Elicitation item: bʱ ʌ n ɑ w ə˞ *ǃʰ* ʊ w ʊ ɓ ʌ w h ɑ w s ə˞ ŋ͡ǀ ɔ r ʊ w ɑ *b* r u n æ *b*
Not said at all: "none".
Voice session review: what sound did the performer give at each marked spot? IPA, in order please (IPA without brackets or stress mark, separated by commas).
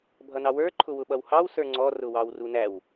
ǃʰ, w, w